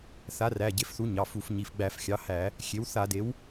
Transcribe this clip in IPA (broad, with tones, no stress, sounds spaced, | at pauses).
θ a˩˥ r æ˩˧˩ ɟ e˩˥ f θ u˩˥ ɲ ɑ˩˧˩ f u˧˩˧ f ɲ i˩˧˩ f ɡ͡b æ˧˩˧ f xʲ ɑ˩˥ h æ˧˩˧ | xʲ e˩˥ w θ a˧˩˧ d e˩˥ w